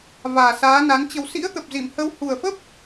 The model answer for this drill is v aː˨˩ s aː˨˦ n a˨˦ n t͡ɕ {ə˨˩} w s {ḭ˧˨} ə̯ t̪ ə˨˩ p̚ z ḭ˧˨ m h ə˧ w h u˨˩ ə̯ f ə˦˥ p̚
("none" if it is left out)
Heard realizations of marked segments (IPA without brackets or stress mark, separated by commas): ə˨˩, ḭ˧˥